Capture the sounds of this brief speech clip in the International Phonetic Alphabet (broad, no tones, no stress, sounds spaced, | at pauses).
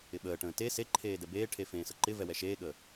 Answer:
ɪ ɓ əː ʈ ə̃ː t e s e ǃʰ eː d ɛ b eː ʈʰ e f ẽː s ə ǃ ɪ v ɛ w ɛ ʃ eː ɠ əː